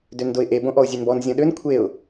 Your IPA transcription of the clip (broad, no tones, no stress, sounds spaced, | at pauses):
d ø n d o ɪ̯ ʔ e b õ ʔ ɔ ʊ̯ zʲ ø n b ɔ n zʲ ɔ̃ ɗ ø n kʷʰ e ʊ̯